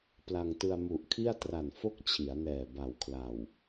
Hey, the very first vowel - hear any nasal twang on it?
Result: no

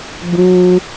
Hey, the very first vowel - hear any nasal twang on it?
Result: yes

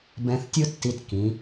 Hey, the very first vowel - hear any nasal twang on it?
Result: yes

